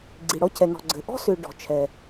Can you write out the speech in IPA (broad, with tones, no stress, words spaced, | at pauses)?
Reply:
ɡ͡ǀi˨ ɽɔ˦cʰɛ˨nɔ̤˨ɡ͡ǀɘ˨ ʔɔ̤˦sʏ˨ ɖɔ̤˨ t͡ʃʰɛ˨